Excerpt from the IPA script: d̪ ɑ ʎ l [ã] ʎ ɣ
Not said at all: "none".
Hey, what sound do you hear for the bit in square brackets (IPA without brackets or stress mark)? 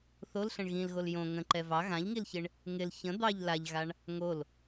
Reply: a